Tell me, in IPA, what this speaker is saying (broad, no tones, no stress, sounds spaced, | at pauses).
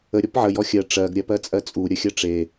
ə ɾʲ ɔ p ʕ ə j ɔ xʲ ɜ ʈ͡ʂ ɜ ɡ ɾʲ ɜ p ɜ t͡sʼ ɜ t͡sʼ u ɾʲ ə xʲ ɜ ʈ͡ʂ e